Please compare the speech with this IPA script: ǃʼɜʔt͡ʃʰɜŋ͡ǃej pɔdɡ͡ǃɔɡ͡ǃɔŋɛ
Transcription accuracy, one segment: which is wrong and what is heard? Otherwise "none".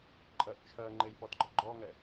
none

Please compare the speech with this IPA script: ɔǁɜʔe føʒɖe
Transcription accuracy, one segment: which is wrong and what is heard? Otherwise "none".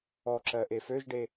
none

